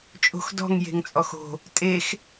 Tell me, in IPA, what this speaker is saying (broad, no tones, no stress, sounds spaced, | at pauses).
t͡ʃʼ o̤ x d ɔ̤ ŋ j e̤ ŋ t͡sʼ ɔ x o̤ | tʼ e x